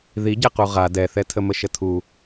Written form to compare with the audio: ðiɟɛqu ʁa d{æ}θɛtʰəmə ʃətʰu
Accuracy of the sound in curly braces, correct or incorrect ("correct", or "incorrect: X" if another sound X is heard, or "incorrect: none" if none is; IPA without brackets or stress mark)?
incorrect: ɛ